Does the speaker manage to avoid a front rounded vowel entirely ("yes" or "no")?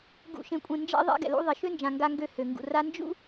no